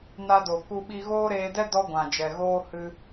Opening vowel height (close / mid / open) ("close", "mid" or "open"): open